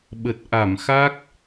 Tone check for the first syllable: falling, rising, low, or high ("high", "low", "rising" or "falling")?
low